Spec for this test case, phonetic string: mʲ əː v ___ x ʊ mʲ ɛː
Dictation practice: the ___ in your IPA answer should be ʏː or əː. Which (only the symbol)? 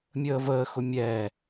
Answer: əː